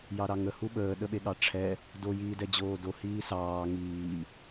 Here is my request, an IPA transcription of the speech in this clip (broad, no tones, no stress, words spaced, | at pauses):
jɑɾɑŋə huɓəː ɗəɓeɠɑʈ͡ʂʰɛ | do jiːdɛd͡ʑoːdo hiːsɑː ŋiː